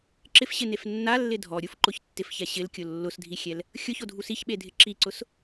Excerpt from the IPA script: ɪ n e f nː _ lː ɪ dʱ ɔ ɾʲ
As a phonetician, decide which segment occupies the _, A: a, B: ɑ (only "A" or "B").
A